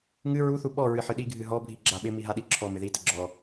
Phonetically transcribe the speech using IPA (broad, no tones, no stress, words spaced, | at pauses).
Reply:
ŋɨ ɹuθu ɓɔ ɹɨħɨɗiɡʱɨ ɦɔbʱi ɡ͡ǁaɓɪ miɦaɗiǁʰɔ mɪði təɡ͡ǁɔ